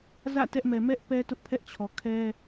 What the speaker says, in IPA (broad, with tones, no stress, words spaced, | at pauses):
zä̰˦˨ tɛ˦ʔmɛ˨ mɛ˦ʔ pɛ˦tʊ˦ʔpʰɛ˦ʔt͡ɕʰɔ˨ kʰɛ˦